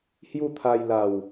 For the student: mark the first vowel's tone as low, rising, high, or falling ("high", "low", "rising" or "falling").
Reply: falling